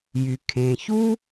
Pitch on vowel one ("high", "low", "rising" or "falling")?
low